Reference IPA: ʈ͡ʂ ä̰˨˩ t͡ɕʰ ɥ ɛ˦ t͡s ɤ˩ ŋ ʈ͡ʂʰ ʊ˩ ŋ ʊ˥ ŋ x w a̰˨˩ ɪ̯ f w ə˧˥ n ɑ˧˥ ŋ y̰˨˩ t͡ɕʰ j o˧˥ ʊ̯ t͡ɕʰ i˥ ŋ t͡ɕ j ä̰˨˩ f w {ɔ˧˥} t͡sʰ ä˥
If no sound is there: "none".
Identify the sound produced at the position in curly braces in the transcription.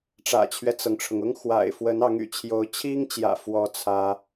ɔ˥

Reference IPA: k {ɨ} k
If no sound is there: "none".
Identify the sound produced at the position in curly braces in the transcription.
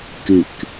ɨ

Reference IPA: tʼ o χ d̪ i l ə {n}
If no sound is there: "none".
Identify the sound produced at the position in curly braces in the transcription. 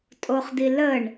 ɳ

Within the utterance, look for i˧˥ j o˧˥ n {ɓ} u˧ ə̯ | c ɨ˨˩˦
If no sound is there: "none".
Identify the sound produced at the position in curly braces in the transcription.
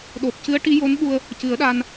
ɓ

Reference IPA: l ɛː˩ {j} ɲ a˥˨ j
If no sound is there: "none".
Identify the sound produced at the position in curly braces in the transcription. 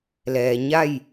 none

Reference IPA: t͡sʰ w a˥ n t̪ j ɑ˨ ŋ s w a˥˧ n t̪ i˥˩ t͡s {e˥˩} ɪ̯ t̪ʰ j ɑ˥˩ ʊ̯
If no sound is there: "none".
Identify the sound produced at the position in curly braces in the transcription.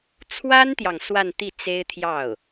e˥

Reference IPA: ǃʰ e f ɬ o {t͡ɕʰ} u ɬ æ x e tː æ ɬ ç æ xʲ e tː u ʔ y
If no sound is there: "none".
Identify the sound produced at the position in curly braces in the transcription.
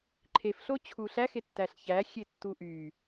t͡ɕʰ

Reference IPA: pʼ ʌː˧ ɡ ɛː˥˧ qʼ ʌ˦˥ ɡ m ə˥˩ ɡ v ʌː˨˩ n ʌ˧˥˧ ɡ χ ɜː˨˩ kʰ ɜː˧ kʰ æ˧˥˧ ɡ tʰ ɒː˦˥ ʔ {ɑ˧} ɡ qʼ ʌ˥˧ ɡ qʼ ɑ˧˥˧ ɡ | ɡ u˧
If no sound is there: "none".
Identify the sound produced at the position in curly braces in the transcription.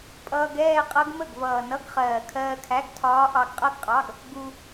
ɑ˧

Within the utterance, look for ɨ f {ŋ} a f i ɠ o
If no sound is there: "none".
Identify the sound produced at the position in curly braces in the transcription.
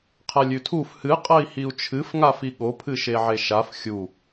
ŋ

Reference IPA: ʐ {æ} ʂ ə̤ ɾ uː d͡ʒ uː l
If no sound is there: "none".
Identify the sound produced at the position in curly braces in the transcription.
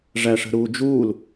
æ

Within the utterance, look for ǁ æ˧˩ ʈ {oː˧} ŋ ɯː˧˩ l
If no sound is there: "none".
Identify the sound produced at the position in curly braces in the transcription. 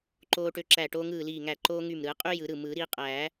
oː˧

